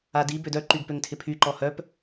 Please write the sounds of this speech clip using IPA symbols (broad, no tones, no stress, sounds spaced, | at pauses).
a d i b ø d œ ǃ y ɡ p ø ŋ tʰ ɪ pʰ y ǃ ɔ h œ p